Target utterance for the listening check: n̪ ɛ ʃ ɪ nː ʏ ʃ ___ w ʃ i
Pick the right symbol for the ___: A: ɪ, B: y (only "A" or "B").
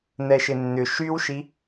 B